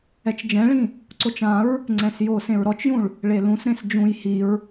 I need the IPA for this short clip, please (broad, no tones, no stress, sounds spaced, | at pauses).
ɛ t͡ʃ d͡ʒ ɛ̃ ɭ ĩ | ǀ o t͡ʃ ã ɹ | ŋ͡ǀ ɛ̃ s j o s ẽ ɹ ɾ ɔ t͡ʃ j ũ ɭ | ɭ e l ũ s ɾ ẽ s d͡ʒ ũ j h i ɹ